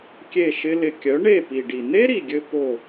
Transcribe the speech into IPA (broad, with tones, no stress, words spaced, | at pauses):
kʲe˦˨ʃɪ˦lɪ˧ kʲœ˨˦ɳe˦˨pi˨ɖi˨ n̪e˦ɾi˨ɡʲɘ˧ po˦˨